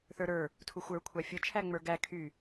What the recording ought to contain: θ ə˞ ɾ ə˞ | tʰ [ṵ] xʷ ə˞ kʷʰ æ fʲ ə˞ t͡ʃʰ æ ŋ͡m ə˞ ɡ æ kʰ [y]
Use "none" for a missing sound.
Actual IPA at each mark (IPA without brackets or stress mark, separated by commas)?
u, y